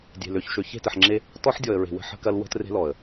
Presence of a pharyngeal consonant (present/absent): present